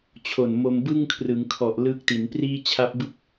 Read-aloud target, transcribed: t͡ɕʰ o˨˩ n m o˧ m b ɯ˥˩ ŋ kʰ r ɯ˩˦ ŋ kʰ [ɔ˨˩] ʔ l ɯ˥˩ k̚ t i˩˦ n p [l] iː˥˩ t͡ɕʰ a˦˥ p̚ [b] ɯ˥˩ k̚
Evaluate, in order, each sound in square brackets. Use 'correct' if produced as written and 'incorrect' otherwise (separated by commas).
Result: correct, incorrect, correct